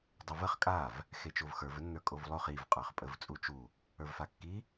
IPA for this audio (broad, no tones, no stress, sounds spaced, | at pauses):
dˤ ə v ə χ kʼ a v | x e t͡ʃ o v x ə˞ v ə nː ə˞ kʼ o v lˠ o χ i v qʼ ə˞ χ pʼ ə v t͡sʼ u t͡ʃ u | ə˞ v f a kː i